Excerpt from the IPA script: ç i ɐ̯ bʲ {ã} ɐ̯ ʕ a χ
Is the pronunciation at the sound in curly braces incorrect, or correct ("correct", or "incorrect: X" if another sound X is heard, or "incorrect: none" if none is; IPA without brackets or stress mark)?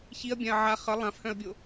correct